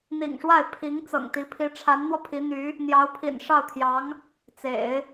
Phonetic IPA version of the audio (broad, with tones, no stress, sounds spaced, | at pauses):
n̪ ḭ˨˩ ŋ ʂ w a˥˩ ɪ̯ pʰ i˧˥ ŋ t͡s ɤ̰˨˩ ŋ t̪ i˧˥ pʰ i˧˥ ʈ͡ʂʰ a˧˥ n n̪ w ɔ˧ pʰ i˧˥ n̪ y˧˥ | n̪ j ɑ˧˥ ʊ̯ pʰ ḭ˨˩ n ʂ ɑ˥˩ ʊ̯ t̪ʰ j ɑ˧˥ ŋ | t͡s ḛ˨˩˦ ɪ̯